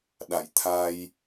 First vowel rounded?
no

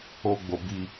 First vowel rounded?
yes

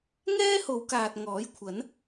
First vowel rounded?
no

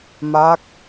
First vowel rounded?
no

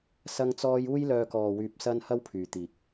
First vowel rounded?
no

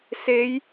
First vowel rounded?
no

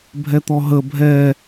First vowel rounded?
no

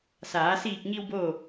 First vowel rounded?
no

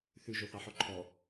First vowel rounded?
yes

